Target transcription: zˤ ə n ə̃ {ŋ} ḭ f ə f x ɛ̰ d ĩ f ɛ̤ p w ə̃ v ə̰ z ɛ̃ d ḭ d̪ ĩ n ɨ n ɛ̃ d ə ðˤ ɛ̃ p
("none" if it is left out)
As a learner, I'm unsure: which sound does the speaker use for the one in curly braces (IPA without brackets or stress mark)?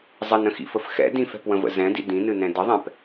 x